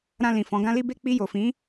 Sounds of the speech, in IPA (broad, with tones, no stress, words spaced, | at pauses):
ɾã˧lĩ˨ fɔ̃˨˦ɡã˦li˦be˦ k͡pi˧jo˨fĩ˨˦